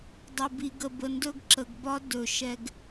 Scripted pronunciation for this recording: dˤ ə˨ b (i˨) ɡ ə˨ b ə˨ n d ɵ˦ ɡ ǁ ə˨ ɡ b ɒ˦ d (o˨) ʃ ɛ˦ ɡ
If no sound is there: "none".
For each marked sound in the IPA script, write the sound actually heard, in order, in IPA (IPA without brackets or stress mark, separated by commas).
i˨, ɵ˨